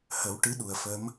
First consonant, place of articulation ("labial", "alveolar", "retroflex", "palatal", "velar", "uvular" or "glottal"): glottal